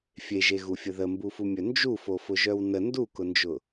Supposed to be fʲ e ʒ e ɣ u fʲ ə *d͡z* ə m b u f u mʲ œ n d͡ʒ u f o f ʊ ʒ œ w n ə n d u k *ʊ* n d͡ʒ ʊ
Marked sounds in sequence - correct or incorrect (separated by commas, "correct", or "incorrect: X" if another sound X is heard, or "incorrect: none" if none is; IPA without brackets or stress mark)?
incorrect: ð, correct